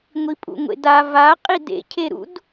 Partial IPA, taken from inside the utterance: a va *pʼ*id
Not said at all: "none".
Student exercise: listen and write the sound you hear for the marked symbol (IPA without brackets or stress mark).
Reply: qʼ